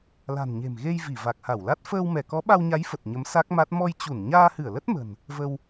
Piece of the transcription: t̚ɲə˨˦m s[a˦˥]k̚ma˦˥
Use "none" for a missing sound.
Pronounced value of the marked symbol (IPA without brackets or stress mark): a˦˥